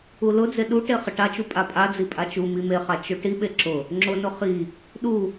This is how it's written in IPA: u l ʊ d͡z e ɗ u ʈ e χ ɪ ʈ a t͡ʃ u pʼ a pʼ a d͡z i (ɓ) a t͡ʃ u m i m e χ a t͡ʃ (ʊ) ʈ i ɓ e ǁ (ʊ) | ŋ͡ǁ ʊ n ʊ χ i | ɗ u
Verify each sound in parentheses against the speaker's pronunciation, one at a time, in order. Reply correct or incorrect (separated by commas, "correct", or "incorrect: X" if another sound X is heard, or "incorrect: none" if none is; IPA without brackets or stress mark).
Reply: incorrect: pʼ, correct, correct